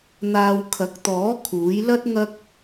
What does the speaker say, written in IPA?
n̪ aː˧ w kʰ ɐ˨˥ k̚ t̪ ɔː˨˥ kʰ uː˨˥ j l ɐ˥ t̚ ŋ ɐ˥ k̚

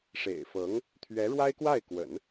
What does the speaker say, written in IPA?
ʂ ḛ˨˩ ɪ̯ f ɤ˧˥ ŋ | t̪ʰ ɥ ɛ˧˥ ɻ w a˥ ɪ̯ k w a˥˩ ɪ̯ k w ə̰˨˩˦ n

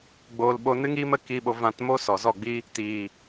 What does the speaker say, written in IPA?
ɡ͡b oː˧ l ɓ o˧ n ɨ˦ ŋ iː˦ m ə˦ k i˧ ɓ o˧ v ã˧ t m o˦ s ɔ˨ z ɔ˦˨ ɡ͡b i˦ | t iː˨

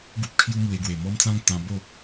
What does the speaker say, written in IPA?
ɡ u˦ p̚ kʰ j u˦ m w e˧ ɡ w e˨˩ m ɔ˦ m t͡s ã˦ ŋ t̪ ã˧ b o˥˧

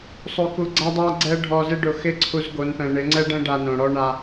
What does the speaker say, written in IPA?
sˤ o˧ k u˧ ɡ͡ǀ a˦ dˤ a˦ ɡ͡ǀ ɛ˦ ɖʱ ɔ˧ z ɪ˦ ɖ ʊ˧ x ɪ˦ ǀʰ u˧ z ɡ o˨˦ n p ɛ̃˨ ɳ ɪ˨˦ ŋ͡ǀ ɛ˦ ɖ ɛ̃˦ ɖ a˧ n õ˨ ɽ ɔ˦ ɳ a˧

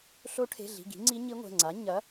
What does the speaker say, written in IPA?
ɬ o˧˥ ʈʰ e̤˩˧˩ ɮ i̤˩˧˩ ɡ i̤˩˥ ŋ͡ǀ i˧˥ ɲ i˧˥ ŋʷ ɛ̤˩˧˩ ŋ͡ǀ a˩˥ ɲ ɐ˩˥

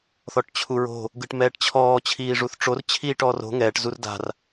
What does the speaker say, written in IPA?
θ ɔ ʈ t͡ɕʰ u ɹ o̤ | ɡ ɯ ʈ m ɛː ʈ t͡ɕʰ ɔː t͡ɕʰ iː ʐ u θ ʈ͡ʂ o r t͡ɕʰ iː ʈ ɔː r o̤ ŋ ɛː ʈ z u r d a̤ r

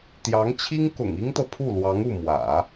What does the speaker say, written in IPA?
t̪ j ɑ˧˥ ŋ t͡ɕʰ i˥ ŋ k ʊ̰˨˩ ŋ i˥ ŋ t̪ ɤ˨ pʰ u˥˩ l w ɑ˧˥ ŋ u˥˩ m w ä̰˨˩˦

